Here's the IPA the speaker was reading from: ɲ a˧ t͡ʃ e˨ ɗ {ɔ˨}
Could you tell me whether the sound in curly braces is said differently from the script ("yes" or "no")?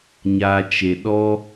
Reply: yes